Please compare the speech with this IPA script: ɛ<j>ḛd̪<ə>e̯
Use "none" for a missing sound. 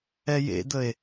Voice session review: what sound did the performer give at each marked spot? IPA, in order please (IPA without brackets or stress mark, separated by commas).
j, ə